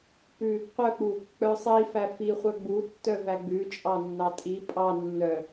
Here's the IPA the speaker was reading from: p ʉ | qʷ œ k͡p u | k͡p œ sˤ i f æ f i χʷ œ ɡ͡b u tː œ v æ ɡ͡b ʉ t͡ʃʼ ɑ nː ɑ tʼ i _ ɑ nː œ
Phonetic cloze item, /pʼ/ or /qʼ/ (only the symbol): pʼ